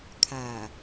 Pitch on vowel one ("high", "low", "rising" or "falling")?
low